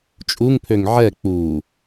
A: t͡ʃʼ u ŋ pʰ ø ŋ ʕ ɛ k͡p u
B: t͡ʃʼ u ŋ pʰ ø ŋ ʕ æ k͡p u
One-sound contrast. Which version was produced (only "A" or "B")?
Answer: A